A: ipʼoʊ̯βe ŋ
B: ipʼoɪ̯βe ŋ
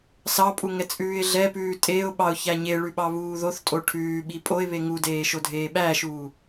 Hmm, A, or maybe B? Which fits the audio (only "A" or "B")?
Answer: B